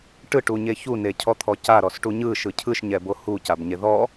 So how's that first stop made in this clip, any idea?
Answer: plain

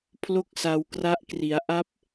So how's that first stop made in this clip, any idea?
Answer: aspirated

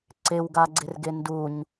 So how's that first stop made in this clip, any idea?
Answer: click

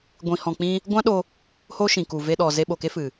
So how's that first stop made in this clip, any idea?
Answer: plain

